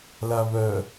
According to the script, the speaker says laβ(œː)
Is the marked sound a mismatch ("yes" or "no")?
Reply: yes